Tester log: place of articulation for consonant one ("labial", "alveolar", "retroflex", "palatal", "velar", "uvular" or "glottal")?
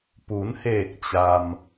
labial